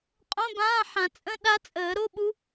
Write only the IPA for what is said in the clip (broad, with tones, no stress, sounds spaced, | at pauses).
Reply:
qʼ õ˧˥˧ b ãː˧˥˧ ħ ã˨˩˦ t͡sʼ ə̃˧˥˧ ɗ a˦˥ t͡sʼ əː˨˩˦ ɾ o˧˥˧ ɓ u˦˥